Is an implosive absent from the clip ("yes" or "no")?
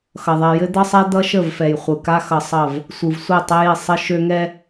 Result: yes